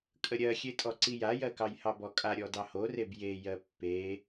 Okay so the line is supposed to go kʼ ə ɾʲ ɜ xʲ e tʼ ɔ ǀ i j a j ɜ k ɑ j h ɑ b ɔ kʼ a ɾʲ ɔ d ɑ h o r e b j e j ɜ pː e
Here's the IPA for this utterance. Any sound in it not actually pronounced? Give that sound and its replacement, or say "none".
none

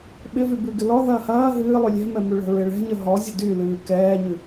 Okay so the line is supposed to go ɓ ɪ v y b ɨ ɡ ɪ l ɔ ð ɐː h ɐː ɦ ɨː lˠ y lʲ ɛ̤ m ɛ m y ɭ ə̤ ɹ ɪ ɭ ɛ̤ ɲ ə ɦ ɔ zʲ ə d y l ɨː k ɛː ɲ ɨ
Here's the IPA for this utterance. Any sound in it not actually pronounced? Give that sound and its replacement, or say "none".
none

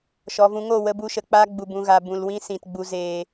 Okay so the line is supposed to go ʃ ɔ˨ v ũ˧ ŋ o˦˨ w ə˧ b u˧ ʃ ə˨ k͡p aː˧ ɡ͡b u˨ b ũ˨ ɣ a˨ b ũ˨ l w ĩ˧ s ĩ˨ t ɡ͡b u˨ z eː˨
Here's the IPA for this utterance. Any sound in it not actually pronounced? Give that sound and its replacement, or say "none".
none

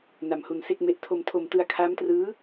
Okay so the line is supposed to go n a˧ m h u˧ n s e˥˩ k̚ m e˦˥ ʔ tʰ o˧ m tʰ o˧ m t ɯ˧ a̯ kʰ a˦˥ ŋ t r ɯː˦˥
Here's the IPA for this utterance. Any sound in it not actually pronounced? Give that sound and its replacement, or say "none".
ŋ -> m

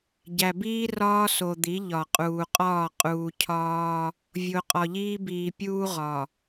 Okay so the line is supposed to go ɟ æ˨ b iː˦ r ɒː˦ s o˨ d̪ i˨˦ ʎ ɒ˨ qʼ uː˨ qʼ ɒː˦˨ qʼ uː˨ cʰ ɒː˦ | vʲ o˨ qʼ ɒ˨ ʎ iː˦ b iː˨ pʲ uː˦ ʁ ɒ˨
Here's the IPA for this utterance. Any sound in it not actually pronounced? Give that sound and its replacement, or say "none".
none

